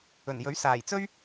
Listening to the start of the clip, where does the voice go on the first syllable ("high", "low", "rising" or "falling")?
low